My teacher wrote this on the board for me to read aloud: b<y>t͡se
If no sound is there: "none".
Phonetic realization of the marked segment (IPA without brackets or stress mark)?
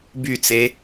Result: y